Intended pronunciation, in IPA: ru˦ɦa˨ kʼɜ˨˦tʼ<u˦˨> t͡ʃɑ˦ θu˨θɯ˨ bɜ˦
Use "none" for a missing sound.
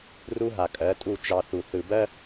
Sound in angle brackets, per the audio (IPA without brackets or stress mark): u˦˨